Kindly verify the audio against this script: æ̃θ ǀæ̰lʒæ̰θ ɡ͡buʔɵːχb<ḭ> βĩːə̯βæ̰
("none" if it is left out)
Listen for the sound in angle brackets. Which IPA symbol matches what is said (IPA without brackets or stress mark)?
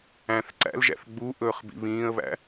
ḭ